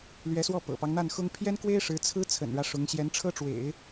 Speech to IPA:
lɥɛ˧˥swɔ˥˩ pɤ̰˨˩pɑ˦ŋn̪a˥˩nxʊ˥ŋ pʰjɛ˥nkwe˥ɪ̯ ʂɻ̩˧˥t͡sʰɹ̩˥ t͡sʰə̰˨˩nɻä˦ ʂʊ˧˥ŋ ɕjɛ˧˥nʈ͡ʂʰɤ˥ʈ͡ʂwḛ˨˩˦ɪ̯

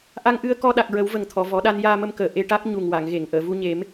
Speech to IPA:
ʔa˧ŋʔɨ˧ə̯ kɔ˧ɗa˨˩k̚ɹə˨˩˦w və˨˩ŋt̪ʰɔ˨˩˨ vɔ˨˩˦ɗa˧n jaː˧mə˧mkəː˨˩ ʔe˧ʈa˦˥k̚ ɲu˨˩ŋwa˨˩˨ŋɣe˨˩˨ŋ ʔəː˨˩˨vu˧ɲe˨˩˦m

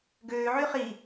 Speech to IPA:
ɡøːʕy χi

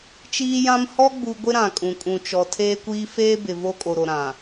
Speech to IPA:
t͡ʃiː˦jã˦m hɔ˦ ɡ͡bu˦ ɡʷɪ˦ɾã˨kʼũ˨ kʼũ˨t͡ʃɔ˨ tʰeː˦kʷiː˦ feː˦bɪ˨ vo˦kʼo˨ɾo˨ɾã˨

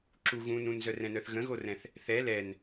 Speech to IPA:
ǁu ɣũn ũnzœrɛ̃nœθ ɣə̃ɣorɛ̃θ | θɛ lɛn

